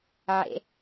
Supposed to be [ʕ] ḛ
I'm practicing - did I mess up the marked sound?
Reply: no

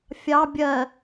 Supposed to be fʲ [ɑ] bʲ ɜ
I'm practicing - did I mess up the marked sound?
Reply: no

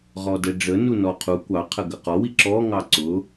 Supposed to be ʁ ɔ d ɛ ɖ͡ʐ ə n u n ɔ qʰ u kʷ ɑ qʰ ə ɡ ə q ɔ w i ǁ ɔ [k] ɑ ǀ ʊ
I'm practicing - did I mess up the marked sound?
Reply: yes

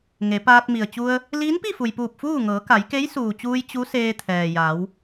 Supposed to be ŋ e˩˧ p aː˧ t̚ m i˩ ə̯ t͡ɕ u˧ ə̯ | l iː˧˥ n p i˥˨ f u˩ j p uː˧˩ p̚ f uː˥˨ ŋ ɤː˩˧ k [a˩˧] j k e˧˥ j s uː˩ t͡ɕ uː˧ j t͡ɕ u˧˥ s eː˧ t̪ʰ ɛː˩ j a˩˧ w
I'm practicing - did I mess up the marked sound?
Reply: no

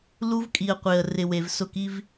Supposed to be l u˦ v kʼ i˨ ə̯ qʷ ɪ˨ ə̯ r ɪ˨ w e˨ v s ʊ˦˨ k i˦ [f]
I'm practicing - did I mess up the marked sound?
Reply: yes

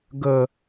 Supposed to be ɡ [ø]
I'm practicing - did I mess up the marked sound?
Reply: yes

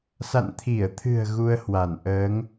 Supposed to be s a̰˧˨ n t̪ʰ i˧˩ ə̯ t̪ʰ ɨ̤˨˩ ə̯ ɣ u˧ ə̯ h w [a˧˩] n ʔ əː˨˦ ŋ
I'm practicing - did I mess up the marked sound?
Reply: no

